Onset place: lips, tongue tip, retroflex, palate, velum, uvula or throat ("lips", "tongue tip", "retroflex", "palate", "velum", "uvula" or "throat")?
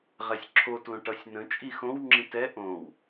uvula